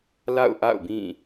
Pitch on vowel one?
falling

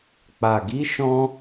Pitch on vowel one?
low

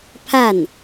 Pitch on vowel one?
falling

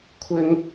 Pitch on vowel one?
high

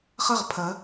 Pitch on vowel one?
falling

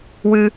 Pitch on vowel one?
high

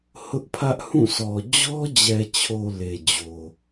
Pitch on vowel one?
high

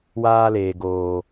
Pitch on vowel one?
high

